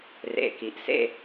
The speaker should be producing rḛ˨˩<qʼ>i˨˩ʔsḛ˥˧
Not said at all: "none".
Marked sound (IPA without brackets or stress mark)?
k